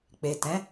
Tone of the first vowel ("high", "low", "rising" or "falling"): low